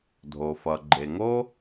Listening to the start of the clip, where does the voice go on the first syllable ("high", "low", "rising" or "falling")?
low